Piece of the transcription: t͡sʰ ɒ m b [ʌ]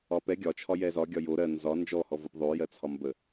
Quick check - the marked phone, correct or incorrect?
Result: incorrect: ə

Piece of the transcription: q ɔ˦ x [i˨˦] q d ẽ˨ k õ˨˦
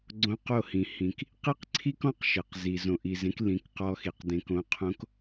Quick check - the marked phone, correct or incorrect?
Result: incorrect: i˨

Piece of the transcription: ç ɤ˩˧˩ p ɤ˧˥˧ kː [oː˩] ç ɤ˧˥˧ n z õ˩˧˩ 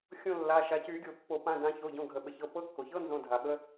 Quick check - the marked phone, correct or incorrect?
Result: incorrect: o˩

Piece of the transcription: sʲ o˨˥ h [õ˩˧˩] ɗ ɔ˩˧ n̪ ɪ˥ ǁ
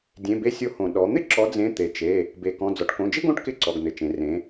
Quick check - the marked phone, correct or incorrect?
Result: incorrect: õ˩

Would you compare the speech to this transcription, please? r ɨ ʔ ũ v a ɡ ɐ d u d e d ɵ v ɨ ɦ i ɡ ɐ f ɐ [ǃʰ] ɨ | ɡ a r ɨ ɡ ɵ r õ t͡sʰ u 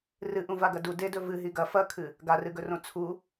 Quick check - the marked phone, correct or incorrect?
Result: incorrect: kʰ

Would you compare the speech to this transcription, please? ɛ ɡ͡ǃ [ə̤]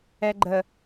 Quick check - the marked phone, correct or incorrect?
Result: incorrect: ə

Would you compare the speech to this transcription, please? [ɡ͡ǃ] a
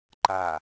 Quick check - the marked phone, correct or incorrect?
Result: incorrect: ǃ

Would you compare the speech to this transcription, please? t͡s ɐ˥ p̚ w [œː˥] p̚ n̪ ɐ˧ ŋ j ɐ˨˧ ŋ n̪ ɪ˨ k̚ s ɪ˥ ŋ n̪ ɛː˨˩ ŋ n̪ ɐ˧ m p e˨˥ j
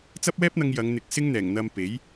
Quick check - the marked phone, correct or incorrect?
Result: incorrect: ɛː˥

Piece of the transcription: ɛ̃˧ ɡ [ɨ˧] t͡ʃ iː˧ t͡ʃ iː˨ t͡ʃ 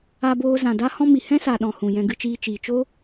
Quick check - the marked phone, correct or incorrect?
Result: correct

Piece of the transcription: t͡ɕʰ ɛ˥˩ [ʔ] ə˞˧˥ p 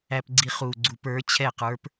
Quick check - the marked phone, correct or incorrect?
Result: incorrect: q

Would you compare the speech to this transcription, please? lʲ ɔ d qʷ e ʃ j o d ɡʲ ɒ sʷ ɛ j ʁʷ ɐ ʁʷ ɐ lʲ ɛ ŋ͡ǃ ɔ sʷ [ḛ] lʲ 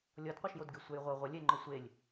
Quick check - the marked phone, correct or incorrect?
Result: incorrect: e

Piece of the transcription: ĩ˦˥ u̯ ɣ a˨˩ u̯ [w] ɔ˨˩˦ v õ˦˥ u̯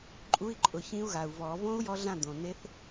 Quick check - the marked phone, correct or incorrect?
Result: incorrect: v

